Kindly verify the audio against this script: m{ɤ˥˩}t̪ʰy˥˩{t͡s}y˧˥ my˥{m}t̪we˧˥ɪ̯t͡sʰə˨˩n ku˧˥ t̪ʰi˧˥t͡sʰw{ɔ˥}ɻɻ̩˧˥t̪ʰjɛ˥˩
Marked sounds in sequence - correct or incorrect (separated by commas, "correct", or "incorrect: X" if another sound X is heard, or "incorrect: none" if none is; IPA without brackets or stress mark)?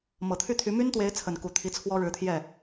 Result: incorrect: ɤ˨˩, incorrect: t̪ʰ, incorrect: n, correct